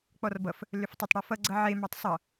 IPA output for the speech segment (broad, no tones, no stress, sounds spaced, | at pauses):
k͡p ɔ r b ʌ f | l ʏ f tˤ e tˤ ɽ ɔ f ʌ ɡ͡ǀ ʌ ʕ e m ɑ tˤ sˤ ʌ